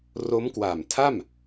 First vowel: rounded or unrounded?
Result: rounded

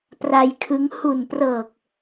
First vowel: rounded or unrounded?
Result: unrounded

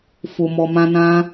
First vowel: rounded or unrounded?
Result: rounded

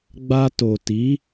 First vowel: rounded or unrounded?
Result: unrounded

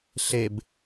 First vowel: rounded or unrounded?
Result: unrounded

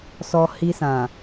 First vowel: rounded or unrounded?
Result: rounded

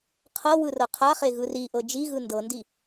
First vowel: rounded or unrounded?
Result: unrounded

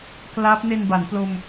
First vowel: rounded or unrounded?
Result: unrounded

